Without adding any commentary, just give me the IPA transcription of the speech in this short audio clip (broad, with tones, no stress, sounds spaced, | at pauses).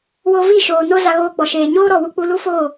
w o˧ v i˦˨ ʃ oː˨ n o˦ z a˧ ɣ oː˧ ɡ͡b ɔ˨ ʃ eː˨ ɲ oː˦ ɾ ɔ˨ w u˧ k͡p u˧ l u˦ f oː˦˨